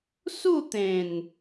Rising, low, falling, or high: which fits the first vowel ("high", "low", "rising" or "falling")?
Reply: falling